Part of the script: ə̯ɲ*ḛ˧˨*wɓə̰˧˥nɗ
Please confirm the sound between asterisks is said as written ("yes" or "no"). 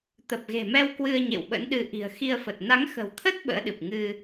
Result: yes